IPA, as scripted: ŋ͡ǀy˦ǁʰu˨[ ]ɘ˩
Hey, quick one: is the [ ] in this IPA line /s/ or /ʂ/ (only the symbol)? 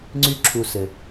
s